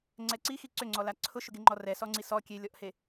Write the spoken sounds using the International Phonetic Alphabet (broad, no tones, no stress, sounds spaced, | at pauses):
ŋ͡ǀ ɛ ǀ i x i ǀ ʏ ŋ͡ǀ ɔ l a ǀʰ ʊ ʃ ʊ ɡ e ŋ͡ǃ ɔ r ɛ s ɔ ŋ͡ǀ i s ɔ kʲ e lʲ ɔ ʔ h e